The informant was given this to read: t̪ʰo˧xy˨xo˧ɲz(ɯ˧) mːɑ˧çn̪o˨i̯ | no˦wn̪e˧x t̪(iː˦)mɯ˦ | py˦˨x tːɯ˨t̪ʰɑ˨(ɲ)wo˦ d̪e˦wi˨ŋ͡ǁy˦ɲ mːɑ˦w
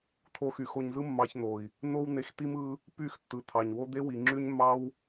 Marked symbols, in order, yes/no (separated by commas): no, no, yes